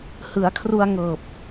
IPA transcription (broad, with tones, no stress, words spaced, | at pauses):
hɯ˩˦a̯kʰru˧a̯ ŋɤː˨˩p̚